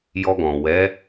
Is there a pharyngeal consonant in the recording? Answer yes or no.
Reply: no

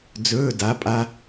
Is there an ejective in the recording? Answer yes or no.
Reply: yes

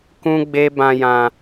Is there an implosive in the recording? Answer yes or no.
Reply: no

